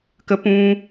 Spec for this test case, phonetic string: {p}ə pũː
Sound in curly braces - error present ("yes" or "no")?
yes